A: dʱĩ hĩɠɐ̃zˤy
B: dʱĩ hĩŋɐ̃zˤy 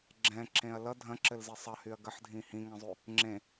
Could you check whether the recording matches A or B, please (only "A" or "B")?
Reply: B